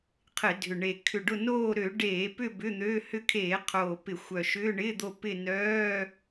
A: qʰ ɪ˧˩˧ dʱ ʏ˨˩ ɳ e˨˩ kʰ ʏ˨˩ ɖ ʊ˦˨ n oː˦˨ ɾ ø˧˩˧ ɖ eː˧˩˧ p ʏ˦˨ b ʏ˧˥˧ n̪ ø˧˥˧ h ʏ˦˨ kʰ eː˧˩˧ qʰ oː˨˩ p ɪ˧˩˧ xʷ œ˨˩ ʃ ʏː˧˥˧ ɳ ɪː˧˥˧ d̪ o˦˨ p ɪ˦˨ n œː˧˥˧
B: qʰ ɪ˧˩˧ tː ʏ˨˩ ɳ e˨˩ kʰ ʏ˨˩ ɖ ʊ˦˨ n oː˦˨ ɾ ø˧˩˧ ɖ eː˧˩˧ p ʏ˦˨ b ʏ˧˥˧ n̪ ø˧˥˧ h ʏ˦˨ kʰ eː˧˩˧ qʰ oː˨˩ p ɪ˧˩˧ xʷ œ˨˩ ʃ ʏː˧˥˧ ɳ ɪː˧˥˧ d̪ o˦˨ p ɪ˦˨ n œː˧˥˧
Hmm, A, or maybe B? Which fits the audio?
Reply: A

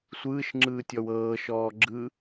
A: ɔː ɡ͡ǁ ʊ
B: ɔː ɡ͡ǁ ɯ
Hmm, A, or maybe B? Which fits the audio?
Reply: B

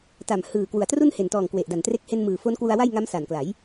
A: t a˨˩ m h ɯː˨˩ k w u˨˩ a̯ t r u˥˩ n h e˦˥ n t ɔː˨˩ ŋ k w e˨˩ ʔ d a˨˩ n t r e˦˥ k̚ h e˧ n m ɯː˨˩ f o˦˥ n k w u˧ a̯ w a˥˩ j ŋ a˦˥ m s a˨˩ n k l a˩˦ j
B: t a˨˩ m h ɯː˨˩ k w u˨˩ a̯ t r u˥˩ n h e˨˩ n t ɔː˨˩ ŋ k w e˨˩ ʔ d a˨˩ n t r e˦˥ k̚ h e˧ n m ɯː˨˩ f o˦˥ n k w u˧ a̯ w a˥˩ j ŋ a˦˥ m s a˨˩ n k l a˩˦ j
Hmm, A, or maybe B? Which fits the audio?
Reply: B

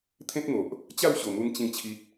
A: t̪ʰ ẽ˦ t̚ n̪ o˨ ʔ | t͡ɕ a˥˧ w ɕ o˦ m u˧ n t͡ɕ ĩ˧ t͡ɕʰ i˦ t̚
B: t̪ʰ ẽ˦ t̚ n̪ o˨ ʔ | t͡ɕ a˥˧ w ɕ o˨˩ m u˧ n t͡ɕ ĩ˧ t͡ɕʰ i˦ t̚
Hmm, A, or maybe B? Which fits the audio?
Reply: B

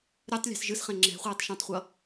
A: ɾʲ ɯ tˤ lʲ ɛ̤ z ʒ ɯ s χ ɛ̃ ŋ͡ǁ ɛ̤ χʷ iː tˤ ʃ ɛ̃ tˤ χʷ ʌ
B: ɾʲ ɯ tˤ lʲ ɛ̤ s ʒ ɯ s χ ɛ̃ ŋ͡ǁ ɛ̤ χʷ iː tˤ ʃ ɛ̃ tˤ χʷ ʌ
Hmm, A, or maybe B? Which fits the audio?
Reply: B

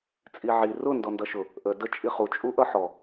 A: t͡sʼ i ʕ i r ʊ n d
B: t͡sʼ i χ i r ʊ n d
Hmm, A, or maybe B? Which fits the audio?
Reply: A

